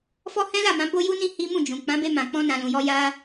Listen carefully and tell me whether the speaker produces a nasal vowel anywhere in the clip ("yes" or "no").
yes